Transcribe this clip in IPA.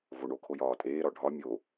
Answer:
voɳokʰo jɒːtʼeːɾɒ ɖʱɒ mʲo

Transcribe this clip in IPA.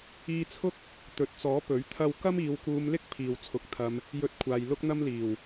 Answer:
iː˧t͡sʰʊ˥k̚ | t̪ɵ˨t̚t͡sɔː˨˥ pɵ˨˥ɥt̪ʰɐ˥w kɐ˥miː˨˧wkuː˧mlɪ˥k̚ pʰiː˨wt͡sʰʊ˨˥k̚t̪ʰɐ˧m | jɵ˧t̚kʷʰaː˨j lʊ˥k̚n̪ɐ˥mliː˨˩w

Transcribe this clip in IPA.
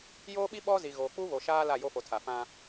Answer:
joː˦ɓi˦ ɓɔ˦zi˨ɣoː˨ k͡pu˦ βo˨ʃaː˦ la˦˨jo˦fo˨tʰa˨ fã˦

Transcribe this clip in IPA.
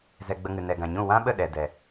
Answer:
zɛ˧ɡ͡bə˧ŋɨ˨ nɛ˨ɡã˨ɲũ˦˨ wã˦ɓə˦˨ ɗɛ˨dɛ˨

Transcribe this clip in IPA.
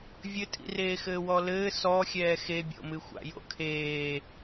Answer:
vʲɘtʼḭreːxɘː wɔlɘː sɔ xʲɛːxebʲo̰mɨ xʷa̰jo̰kʰeː

